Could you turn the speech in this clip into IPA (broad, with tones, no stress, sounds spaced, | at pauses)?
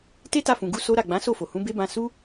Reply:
t e˦ t a˧ f ũ˨ ɡ u˧ s o˦ ɾ a˦˨ ɡ͡b ã˨˦ s o˦˨ f o˨ h ũ˨˦ b e˦ b ã˧ s u˦